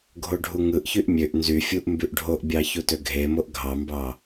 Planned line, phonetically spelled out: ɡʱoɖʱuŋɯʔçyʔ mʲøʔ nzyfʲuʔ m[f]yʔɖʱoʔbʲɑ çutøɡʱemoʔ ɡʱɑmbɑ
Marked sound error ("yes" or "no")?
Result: yes